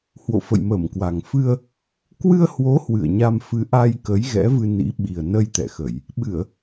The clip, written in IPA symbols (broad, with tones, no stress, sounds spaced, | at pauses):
h w o̰˧˨ f ə̰˧˨ j m əː˧˩ m k w a˨˩ ŋ f ɨ˧ ə̯ | k w ɨ˧ ə̯ h w o˨˦ h w ɨ̰˧˨ ə̯ ɲ a˧ m f ɨ˨˦ ʔ a˧ j k ə˨˦ j ɣ ɛ̰˧˥ v ɨ˧ n ḭ˧˥ ɓ i˨˩ ə̯ n ə˧ j t̪ ɛ̰˧˨ x ə˧˩˨ j | ɓ ɨ˧˩˨ ə̯